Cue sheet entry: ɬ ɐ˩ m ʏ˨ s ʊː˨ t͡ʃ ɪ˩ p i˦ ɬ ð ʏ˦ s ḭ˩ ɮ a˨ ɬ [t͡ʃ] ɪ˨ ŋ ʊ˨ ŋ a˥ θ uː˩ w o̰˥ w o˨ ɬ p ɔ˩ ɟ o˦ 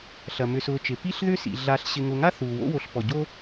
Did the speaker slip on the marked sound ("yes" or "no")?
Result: yes